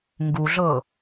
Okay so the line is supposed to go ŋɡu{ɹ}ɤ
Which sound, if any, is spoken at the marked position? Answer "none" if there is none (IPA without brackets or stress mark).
ɮ